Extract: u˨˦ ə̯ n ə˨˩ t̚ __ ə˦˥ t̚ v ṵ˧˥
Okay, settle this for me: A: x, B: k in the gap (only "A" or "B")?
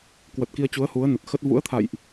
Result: A